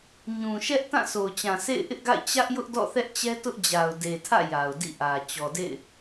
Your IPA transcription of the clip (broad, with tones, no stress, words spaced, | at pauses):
ɲũ˨ʃɛ˦ʔ tã˦˨so˨ʊ̯t͡ɕã˨ sḛ˦˨ɪ̯ʔɪ˦ʔɡa̰˦˨ɪ̯ t͡ɕä˦ʔjʊ˦ʔdɔ̰˦˨ θɛ˦ʔt͡ɕɛ˦tʊ˦ʔd͡ʑa˨ʊ̯ de˨tʰä̰˦˨ ja˨ʊ̯dḭ˦˨ʔä˨ t͡ɕɔ˨dḛ˦˨ɪ̯